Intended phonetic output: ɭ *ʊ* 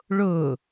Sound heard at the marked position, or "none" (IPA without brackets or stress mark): ʊ